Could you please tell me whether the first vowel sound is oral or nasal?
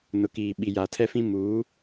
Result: oral